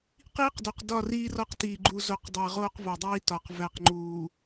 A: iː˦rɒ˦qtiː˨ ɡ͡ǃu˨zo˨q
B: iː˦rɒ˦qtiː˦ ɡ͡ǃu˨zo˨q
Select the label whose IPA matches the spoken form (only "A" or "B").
A